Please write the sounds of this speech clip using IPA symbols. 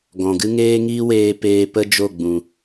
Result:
ɡɔ̃˨ɡɨ˦ŋeː˦ ŋiː˦weː˧ peː˧pə˦d͡ʒo˦˨ɡ͡bũ˨

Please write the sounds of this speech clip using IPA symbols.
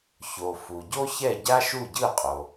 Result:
ço˩ fu˩ɟo˥çɛ˥˩ ɟa˥ʃu˥˩ɟɯ˥˩qʼo˩

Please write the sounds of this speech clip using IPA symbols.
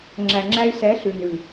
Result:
ŋ͡ǁæ˨ŋ͡ǁæ˧y̯ sɛ˨˦ɬʉ˨ nʉ˨

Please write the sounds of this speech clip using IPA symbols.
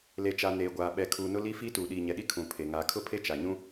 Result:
le˨t͡ʃa˨ neː˨ɡʷaː˨ ɓɛ˨kʰuː˨ nʊ˦li˦fi˦ tuː˨ɗiː˨ɲɛ˨ɗi˦ kʰũ˨ pʰe˨ ŋaː˨kʰʊ˦pʰe˦ t͡ʃa˨ɲũ˦

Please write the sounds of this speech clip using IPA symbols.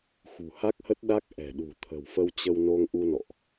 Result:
xṳ˨˩ha˦˥k̚hə˦˥t̚ɗa˦˥k̚ ʔɛ̤˨˩ɗṳ˨˩ t̪ʰə̤˨˩wfə˧wt͡ɕə˧w no˧ŋʔu˧nɔ̰˧˨ʔ

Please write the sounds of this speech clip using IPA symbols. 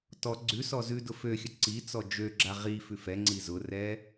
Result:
tɔ ɡ͡ǀʉ sɔzʉdʊ føxʲə ǀi t͡sɔd͡ʒøɡ͡ǁa ʁi fʉfɛŋ͡ǀi zʊrɛ

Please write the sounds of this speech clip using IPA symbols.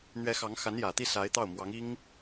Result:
n̪ɥɛ˧˥xɑ˧˥ŋxa˧˥njä˨˩ t̪i˥˩sa˧˥ɪ̯t̪ɑ˥˩ʊ̯ mwɑ˧˥ŋi˥ŋ

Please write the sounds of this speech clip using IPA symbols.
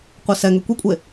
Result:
qʷɛsɛŋø kʷekʷʼe

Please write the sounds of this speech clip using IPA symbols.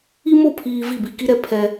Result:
i˦mo˦˨pʰiː˨ vi˦˨ bi˨ki˦ɾɛ˦ pʰɛ˦

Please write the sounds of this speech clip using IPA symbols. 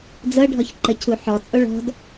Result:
d͡zɤɖʱɔç ǃəcʰuħɔt͡sʼo ɭɔ̤d

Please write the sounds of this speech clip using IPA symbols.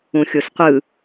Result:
ũxʲosqʷɯ

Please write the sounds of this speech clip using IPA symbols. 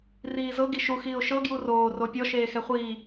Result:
riːzɤ ɡiʃu xiːʊ̯ʃɤ ɡjuroː ropʲɔ ʃeːxɛχʷiː

